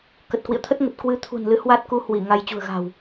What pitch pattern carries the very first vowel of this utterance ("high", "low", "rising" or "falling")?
low